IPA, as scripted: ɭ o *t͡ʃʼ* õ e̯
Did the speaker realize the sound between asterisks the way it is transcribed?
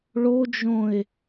no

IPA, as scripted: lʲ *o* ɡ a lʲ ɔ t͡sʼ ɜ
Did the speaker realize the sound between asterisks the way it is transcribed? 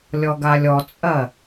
no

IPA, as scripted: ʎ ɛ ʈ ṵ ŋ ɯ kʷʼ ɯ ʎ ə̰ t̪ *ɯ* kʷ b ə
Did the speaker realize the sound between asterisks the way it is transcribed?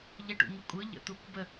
no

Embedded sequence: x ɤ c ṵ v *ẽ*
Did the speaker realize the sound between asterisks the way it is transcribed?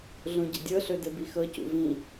no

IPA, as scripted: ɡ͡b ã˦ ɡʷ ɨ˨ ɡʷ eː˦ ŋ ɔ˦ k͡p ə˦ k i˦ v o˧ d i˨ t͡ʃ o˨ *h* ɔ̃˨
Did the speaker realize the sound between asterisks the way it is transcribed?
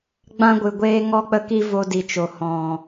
yes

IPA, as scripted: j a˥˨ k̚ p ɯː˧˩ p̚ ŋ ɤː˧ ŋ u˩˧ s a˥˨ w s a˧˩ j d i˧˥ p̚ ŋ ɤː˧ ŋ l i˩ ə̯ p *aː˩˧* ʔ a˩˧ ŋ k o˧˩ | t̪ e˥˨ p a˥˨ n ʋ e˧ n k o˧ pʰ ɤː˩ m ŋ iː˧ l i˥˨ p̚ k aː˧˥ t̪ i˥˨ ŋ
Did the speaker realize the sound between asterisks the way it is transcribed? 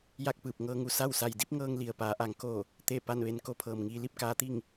yes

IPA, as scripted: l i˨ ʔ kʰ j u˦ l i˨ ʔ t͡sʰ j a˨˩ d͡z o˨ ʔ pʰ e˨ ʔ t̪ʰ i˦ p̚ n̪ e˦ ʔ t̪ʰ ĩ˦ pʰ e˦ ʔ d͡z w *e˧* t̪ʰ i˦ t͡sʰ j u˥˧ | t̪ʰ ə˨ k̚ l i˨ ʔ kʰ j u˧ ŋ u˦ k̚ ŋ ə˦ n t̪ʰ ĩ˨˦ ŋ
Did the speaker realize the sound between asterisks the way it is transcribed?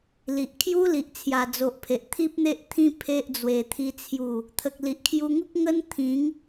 yes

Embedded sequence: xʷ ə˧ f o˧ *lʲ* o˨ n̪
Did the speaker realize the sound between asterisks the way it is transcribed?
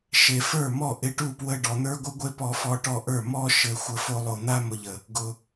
no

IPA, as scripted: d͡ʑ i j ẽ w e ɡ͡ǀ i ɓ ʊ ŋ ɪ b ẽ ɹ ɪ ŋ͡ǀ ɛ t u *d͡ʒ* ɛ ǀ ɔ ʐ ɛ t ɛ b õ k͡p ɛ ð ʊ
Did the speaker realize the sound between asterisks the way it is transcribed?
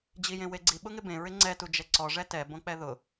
yes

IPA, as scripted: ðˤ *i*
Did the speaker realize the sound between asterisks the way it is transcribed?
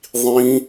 no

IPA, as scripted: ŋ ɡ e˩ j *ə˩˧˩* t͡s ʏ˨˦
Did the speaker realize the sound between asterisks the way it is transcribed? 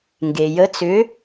no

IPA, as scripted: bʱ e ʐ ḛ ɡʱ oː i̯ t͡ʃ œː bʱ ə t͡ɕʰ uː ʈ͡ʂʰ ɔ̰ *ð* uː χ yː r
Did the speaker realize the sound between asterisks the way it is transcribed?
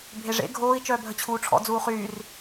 no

